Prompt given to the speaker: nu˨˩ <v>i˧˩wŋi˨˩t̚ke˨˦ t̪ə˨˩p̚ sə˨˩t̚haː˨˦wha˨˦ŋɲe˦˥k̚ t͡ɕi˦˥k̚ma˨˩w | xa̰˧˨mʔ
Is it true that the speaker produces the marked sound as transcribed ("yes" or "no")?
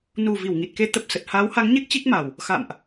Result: yes